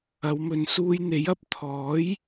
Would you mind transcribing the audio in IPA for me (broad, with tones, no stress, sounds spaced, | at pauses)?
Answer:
ɐ˨˧ w m ɵ˨˧ n s uː˧ j n̪ e˨˥ j ɐ˨ p̚ t̪ʰ ɔː˨˥ j